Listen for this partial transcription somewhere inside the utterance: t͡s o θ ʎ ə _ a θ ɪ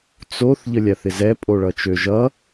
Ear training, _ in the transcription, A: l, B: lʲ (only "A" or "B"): B